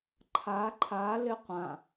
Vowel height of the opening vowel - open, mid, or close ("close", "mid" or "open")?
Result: open